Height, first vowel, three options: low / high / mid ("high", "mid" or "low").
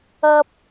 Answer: low